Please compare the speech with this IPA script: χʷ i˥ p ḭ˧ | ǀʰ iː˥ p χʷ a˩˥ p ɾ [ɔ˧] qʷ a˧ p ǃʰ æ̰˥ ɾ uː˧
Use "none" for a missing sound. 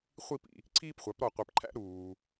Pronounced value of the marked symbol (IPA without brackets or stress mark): ɔ˧